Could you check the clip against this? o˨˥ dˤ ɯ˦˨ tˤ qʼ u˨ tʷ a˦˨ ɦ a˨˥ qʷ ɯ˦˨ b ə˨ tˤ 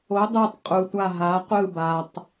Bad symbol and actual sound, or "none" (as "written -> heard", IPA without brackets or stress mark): ə˨ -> a˨